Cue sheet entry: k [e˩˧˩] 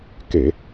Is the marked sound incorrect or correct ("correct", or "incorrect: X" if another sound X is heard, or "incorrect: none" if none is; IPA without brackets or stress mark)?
incorrect: e˧˩˧